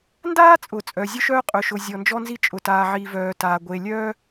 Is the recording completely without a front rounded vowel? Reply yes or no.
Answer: no